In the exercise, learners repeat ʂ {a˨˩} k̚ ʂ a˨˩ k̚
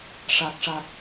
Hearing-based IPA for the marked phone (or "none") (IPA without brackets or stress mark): a˨˩